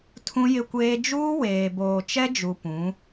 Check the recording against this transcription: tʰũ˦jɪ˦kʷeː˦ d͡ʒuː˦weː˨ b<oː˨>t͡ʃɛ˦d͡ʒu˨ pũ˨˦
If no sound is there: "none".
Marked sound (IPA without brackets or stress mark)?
oː˨